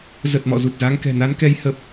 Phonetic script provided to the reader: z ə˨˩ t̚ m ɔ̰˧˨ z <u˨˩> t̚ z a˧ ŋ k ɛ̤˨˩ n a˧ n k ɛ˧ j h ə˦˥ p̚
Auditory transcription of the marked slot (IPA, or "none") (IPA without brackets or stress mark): u˨˩